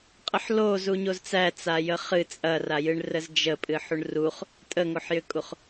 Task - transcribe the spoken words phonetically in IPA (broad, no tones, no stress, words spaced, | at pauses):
qʼəħlo zuɲozt͡sæ t͡sajəχɨ t͡sʼɐrajɨɳ rəzd͡ʒə pʼɨħuɳruχ | tʼəŋoħjʏkʼuχ